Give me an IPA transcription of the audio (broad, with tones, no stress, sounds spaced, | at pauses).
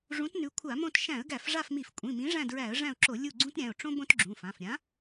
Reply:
ʐ ũ˨˥ t n ʉ˨˥ kʷʰ a˧˩˧ m õ˦˨ t ʃ æ̃˧˩˧ ə̯ ɡ æ˧˩˧ f ʐ a˦˨ f m i˧˩˧ f kʷʼ ĩ˩˧˩ m ĩ˨˥ ʐ æ̃˦˨ d ɹ æ˧˩˧ ə̯ ʐ æ̃˦˨ ʊ̯ ǁ o˧˩˧ lʲ u˦˨ ɡ͡ǀ ũ˥ t ɾʲ æ̃˩˧˩ ʊ̯ ʈ͡ʂ õ˥ b õ˥ t ɡ͡ǁ ũ˩˧˩ f ã˩˧˩ f ɾʲ ã˨˥